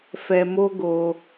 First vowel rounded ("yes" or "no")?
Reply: no